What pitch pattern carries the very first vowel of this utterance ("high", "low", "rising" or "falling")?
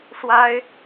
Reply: high